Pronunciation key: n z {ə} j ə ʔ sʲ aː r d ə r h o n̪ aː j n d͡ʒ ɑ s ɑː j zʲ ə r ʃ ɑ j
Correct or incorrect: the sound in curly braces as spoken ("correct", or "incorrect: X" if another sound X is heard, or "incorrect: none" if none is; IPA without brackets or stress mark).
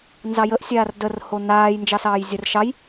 incorrect: ɑ